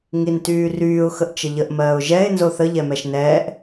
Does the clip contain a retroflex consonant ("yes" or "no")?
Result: no